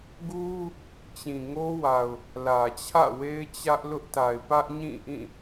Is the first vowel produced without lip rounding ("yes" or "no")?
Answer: no